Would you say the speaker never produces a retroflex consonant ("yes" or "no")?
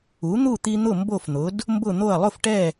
no